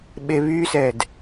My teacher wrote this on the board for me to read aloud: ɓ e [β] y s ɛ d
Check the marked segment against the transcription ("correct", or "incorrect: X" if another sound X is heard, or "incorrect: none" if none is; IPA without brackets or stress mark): correct